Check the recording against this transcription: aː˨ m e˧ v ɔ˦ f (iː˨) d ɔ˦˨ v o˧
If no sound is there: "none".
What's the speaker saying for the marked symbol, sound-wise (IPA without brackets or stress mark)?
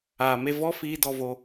iː˧